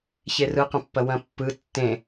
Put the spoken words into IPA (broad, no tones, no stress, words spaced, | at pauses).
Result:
çerɯqə̃pːɐ wɐ̃pːɯ tːẽ